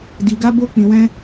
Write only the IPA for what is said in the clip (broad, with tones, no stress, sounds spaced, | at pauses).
d i˧ ɡ a˦ b o˦ k͡p ĩ˧ w ɛ̃˦